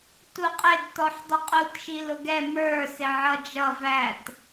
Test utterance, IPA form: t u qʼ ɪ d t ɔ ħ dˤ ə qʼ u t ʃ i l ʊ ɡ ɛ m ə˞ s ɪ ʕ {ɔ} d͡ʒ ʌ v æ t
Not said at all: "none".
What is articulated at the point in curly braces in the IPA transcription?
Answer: ʌ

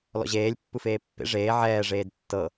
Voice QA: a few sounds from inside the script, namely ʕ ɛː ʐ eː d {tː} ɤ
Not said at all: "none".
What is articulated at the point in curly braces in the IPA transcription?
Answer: tː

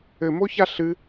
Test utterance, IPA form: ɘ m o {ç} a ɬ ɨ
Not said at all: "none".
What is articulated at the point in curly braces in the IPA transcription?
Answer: ç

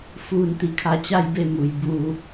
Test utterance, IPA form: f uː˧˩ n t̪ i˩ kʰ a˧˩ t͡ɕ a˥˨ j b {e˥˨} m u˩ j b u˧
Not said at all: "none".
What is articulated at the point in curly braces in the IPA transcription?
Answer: e˥˨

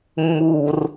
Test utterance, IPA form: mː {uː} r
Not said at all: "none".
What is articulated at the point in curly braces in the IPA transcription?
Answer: uː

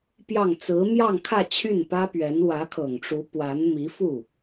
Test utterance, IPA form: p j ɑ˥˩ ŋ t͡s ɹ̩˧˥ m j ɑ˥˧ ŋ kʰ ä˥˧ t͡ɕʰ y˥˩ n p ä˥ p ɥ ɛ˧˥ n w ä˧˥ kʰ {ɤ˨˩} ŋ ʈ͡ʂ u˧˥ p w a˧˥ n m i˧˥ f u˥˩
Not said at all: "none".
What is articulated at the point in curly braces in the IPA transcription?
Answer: ɤ˨˩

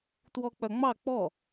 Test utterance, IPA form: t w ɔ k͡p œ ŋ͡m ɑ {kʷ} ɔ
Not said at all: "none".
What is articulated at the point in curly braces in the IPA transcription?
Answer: k͡p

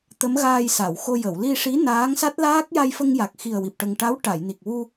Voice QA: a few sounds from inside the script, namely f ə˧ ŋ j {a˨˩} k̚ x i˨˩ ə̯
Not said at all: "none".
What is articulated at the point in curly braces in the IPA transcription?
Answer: a˨˩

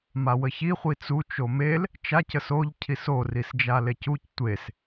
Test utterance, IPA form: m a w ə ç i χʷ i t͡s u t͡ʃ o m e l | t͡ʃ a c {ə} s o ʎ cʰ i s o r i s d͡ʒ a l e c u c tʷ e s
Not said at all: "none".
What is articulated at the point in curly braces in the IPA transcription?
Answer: ə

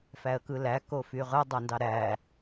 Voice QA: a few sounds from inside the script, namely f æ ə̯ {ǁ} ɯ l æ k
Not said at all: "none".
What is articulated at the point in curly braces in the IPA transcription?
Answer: k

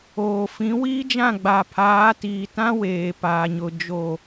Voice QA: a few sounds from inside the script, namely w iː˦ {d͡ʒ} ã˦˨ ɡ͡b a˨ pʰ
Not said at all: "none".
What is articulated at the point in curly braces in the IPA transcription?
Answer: d͡ʒ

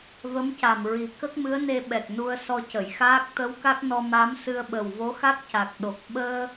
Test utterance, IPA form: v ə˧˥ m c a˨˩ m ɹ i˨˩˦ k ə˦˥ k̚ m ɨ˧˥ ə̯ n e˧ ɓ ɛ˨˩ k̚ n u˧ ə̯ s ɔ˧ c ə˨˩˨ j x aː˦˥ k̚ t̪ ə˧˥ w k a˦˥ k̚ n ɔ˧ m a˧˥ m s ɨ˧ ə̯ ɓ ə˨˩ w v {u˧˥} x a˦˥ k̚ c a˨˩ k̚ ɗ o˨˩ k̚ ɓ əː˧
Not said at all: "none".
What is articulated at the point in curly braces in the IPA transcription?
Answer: o˧˥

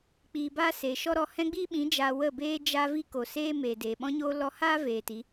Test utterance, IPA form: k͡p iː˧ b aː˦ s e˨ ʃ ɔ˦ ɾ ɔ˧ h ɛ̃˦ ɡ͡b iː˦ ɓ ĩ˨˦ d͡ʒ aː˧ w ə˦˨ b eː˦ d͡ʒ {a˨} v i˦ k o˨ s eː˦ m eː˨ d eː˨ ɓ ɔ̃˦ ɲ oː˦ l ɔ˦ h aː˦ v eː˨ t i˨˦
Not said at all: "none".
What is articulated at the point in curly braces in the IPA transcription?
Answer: a˧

